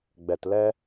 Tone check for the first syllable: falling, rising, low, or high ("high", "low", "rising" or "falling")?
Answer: low